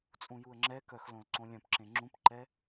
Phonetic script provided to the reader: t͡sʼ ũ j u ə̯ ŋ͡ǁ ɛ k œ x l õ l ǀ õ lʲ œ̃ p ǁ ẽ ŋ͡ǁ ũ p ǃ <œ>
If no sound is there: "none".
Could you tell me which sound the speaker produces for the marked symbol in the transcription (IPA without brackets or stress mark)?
ɛ